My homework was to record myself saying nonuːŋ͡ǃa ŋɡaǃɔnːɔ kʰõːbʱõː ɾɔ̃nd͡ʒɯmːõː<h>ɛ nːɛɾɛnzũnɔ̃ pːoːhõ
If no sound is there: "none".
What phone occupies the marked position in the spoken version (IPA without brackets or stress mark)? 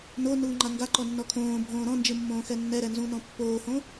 x